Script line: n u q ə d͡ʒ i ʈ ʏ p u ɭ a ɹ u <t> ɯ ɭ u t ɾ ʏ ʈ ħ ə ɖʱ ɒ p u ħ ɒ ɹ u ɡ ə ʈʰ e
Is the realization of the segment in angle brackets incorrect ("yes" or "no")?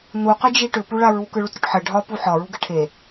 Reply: yes